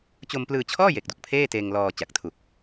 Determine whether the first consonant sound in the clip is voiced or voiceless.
voiceless